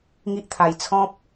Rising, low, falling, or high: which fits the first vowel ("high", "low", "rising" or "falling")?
high